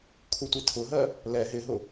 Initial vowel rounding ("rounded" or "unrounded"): rounded